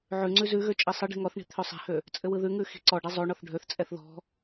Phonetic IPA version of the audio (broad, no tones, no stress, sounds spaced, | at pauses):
ʕ ʉ ŋ͡ǀ ʉ z ʉ ɣ ø t͡ʃʼ i sˤ ɯ ɖ i̤ ŋ ɔ θ ɳ i̤ t̪ʰ ø sˤ ɛ̤ h ø | t͡sʼ ɘ w ɯ ð ʉ ŋ ʉ x i̤ ǀ ɔ ɖ ɛ zˤ o ɳ ɔ θ ɖʱ ø θ t͡sʼ ɛ θ ð ɔ̤